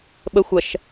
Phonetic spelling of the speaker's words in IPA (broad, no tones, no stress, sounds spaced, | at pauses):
ɓ ə xʷ ɐ ʃ